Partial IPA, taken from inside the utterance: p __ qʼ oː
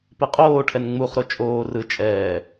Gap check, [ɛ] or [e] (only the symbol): e